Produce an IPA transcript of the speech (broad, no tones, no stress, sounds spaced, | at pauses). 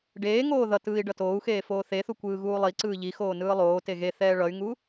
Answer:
ɖ eː ŋ oː ð ʌ t ɯː i̯ ɖ ʌ t oː u̯ x eː f oː θ e θ u kʷ ɯː ɣ uː lˠ i ǀ ɯː ʎ i x oː n ɯː lˠ oː t e ɣ e θ ɛː ɭ ʌ y̯ ŋ u